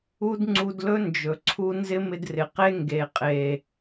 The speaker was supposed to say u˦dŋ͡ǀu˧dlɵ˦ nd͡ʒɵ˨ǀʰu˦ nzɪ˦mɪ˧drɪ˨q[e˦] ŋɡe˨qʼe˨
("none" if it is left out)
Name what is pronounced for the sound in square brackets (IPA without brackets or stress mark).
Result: e˦